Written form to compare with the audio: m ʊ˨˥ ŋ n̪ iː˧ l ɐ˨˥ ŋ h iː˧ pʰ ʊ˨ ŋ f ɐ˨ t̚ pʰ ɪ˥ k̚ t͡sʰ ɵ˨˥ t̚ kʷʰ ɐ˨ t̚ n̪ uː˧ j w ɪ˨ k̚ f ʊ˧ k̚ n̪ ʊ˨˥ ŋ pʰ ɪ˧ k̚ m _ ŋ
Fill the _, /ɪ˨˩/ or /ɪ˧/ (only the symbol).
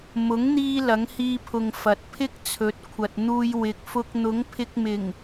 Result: ɪ˨˩